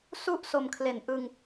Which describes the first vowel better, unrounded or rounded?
rounded